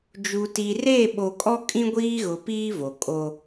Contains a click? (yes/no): no